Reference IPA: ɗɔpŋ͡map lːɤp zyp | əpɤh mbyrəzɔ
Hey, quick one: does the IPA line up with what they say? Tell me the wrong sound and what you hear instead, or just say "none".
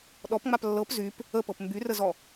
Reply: h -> p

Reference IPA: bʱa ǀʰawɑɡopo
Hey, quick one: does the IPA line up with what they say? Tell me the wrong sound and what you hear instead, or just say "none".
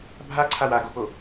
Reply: ɑ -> a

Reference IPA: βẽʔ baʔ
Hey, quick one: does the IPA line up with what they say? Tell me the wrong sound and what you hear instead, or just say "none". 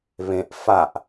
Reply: b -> f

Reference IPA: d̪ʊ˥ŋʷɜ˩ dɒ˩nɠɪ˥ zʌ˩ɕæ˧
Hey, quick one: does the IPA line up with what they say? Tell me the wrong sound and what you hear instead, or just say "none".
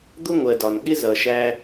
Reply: ɕ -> ʃ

